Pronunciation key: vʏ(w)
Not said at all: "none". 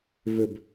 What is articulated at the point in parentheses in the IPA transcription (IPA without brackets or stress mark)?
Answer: b